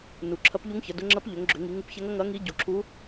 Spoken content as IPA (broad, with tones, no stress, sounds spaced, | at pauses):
n u˩˧ ǁʰ ɐ˧˥ p ʎ u˧˥ ŋ ç ɐ˩˧ d ʊ˧˥ ŋ͡ǁ ɐ˧˥ p ʎ ʏ˩˧ ŋ ɡ͡ǁ ʏ˩˧ ŋ i˩˧ ŋ u˧˥ p ç ɛ˧˥ ŋ ɐ˧˥ ŋ ɐ˧˥ ŋ i˧˥ ɟ u˩˧ ǁʰ u˧˥